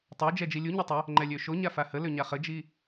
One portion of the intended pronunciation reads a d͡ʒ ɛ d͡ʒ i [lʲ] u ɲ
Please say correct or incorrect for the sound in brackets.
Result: correct